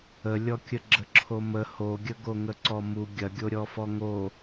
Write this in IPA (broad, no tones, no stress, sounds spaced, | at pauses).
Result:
ə lʲ ɔ kʲ ə ɡ͡ǁ ə ǁʰ o m ə h o ɡʲ ə ɡ o ŋ ə ǀ ɔ m u ɡʲ ɐ ɡʲ o ɾʲ ɔ f ɔ ŋ o